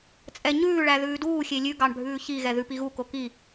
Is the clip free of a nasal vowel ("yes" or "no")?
yes